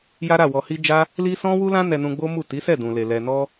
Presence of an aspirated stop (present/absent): absent